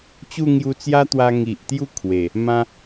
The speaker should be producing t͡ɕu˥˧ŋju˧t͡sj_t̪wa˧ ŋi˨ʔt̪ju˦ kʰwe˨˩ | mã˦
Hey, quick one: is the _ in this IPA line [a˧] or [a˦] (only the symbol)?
a˦